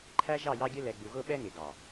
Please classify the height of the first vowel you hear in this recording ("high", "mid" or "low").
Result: low